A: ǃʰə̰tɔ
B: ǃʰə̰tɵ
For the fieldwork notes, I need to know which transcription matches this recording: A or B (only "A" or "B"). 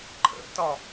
A